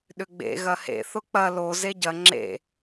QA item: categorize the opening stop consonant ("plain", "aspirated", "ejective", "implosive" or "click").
implosive